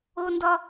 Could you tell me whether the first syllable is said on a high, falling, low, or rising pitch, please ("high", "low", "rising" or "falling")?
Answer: high